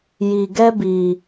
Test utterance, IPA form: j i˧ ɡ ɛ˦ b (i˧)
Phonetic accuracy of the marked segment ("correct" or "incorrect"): correct